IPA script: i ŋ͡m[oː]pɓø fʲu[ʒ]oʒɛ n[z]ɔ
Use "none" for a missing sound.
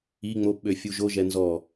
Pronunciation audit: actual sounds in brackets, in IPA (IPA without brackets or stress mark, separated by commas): o, ʒ, z